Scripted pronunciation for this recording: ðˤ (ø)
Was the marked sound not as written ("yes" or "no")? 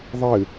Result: yes